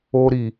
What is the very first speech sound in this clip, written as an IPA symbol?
o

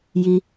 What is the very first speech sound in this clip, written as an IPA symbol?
j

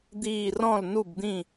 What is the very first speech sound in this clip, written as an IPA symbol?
d̪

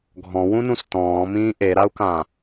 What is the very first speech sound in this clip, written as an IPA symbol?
ɡʱ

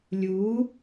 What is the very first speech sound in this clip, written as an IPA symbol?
lʲ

